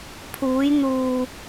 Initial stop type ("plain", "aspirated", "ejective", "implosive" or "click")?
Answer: aspirated